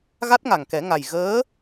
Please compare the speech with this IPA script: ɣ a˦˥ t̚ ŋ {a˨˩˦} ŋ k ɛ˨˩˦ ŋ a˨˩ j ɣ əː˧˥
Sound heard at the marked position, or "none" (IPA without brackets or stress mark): a˨˩